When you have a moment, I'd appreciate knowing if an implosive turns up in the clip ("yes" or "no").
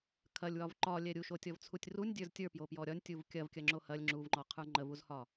no